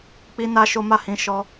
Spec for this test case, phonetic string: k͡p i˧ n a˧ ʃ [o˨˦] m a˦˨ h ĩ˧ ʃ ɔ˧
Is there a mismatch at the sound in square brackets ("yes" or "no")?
yes